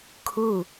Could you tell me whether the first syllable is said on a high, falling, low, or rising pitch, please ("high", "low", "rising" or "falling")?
falling